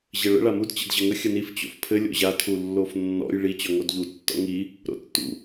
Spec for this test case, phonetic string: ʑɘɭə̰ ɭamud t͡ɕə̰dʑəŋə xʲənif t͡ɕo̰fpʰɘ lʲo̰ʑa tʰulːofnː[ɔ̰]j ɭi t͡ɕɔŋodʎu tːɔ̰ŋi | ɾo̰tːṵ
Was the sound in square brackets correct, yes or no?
yes